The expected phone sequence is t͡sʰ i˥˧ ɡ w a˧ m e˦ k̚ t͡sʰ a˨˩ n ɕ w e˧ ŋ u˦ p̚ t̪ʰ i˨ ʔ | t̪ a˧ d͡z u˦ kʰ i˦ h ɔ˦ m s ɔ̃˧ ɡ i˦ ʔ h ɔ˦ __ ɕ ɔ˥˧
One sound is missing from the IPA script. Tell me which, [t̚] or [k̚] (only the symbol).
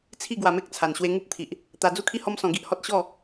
t̚